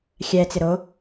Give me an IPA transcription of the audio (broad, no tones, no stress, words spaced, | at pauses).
xʲɛ t͡sɪɾo